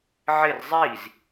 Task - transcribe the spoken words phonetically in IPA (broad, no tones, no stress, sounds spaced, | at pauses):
ʕ ɪ r zˤ iː z